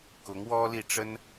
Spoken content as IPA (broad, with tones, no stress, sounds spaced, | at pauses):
k ʊ˧˥ ŋ w ɔ˥ l i˥˩ ʈ͡ʂ ə˥ n